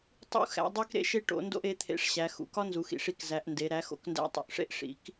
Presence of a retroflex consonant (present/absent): present